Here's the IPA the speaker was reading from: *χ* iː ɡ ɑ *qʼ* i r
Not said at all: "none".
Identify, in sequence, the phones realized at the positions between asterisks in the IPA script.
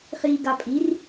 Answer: χ, pʼ

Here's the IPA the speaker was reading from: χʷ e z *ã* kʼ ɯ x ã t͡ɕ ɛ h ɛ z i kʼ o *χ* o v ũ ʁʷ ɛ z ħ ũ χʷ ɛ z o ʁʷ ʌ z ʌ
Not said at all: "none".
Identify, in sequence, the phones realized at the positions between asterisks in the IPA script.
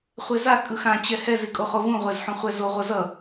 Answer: a, χ

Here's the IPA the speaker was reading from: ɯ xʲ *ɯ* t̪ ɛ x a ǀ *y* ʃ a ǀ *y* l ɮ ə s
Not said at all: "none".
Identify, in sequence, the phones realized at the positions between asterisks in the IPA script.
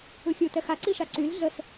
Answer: ɯ, i, y

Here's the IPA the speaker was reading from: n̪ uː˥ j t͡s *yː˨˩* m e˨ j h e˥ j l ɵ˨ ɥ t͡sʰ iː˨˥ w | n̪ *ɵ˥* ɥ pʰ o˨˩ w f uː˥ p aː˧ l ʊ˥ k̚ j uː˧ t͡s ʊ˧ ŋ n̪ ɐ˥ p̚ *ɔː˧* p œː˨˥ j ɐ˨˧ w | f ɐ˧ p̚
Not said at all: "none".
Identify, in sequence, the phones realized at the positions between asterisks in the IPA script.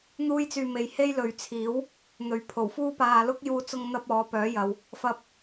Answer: yː˧, ɵ˨˧, ɔː˨˥

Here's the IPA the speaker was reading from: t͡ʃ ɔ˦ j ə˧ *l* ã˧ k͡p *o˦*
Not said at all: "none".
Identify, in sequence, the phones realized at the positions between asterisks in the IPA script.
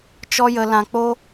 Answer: l, o˦

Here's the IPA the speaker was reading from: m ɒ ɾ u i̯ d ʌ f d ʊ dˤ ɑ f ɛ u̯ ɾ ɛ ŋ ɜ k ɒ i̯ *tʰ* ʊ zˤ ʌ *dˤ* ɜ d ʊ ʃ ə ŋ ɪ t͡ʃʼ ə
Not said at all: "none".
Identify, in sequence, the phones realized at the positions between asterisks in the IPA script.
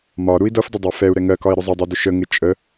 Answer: ɾ, dˤ

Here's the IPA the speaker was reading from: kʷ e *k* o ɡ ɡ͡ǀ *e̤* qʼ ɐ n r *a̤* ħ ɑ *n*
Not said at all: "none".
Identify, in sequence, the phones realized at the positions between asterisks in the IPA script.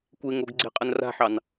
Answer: ŋ, e̤, a̤, n

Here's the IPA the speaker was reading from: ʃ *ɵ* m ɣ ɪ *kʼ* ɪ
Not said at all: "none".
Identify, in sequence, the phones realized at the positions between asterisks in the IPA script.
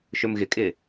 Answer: ɵ, kʼ

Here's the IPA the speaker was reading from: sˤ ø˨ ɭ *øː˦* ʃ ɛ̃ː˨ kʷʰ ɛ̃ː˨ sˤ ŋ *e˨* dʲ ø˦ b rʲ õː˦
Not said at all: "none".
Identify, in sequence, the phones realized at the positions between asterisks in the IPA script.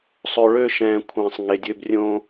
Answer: øː˦, e˨

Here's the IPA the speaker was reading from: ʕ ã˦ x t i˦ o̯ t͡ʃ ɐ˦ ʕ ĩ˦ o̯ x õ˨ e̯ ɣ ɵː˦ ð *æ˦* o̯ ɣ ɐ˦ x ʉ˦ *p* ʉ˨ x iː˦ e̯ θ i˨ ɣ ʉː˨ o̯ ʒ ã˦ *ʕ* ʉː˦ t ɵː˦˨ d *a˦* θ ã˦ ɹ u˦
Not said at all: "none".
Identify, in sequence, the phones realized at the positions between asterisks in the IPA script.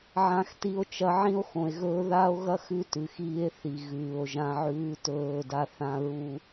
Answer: a˦, t, ʕ, a˦

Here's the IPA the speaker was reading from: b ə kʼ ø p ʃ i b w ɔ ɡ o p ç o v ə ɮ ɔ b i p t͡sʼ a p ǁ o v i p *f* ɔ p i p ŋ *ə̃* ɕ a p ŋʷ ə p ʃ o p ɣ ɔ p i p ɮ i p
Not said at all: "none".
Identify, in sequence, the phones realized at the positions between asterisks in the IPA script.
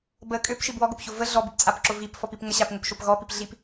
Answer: f, ə

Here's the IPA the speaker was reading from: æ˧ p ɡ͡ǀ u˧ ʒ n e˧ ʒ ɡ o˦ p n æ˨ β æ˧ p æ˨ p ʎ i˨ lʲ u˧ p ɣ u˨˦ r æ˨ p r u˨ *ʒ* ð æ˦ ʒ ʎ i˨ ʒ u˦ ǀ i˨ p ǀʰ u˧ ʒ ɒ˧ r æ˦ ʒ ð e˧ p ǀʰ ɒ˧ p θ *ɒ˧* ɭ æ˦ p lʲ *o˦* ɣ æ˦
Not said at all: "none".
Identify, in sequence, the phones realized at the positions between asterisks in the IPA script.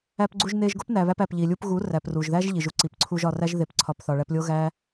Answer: ʒ, ɒ˧, o˦

